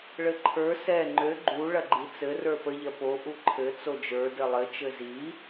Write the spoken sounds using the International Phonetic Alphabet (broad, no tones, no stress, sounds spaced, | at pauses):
ɭ ɘ ǃʰ ə˞ s ɛ ŋ͡ǃ ø ɡ͡ǃ u ɭ ɐ ɡ͡ǃ i t͡s ɘ r ə˞ p ə ʎ ɐ p o ʔ u ǃʰ ɘ t͡s o d͡ʒ ə˞ d ɘ lˠ ɘ t͡ʃ ɘ z i